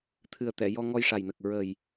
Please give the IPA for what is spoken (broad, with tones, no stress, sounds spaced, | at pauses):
t̪ʰ ɨ˨˩ ə̯ t̪ ɛ˨˩˨ j ɔ˧ ŋ ɔ˧ j ʂ a˨˩ j n ə˨˩ k̚ ɹ ə˨˩ j